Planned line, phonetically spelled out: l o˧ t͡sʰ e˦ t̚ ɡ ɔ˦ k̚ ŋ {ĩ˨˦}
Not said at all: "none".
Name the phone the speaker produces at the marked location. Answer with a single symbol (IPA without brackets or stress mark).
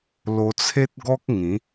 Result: ĩ˨˦